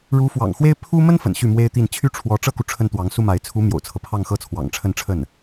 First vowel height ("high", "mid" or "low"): high